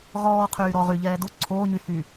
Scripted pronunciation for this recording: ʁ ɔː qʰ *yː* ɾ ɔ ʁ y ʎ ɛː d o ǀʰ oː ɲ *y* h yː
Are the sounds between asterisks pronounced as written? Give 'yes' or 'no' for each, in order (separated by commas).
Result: yes, yes